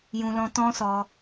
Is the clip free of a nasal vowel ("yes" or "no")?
no